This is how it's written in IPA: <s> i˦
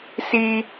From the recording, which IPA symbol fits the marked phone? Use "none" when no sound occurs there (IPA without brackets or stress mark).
s